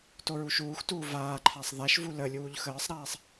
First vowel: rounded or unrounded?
rounded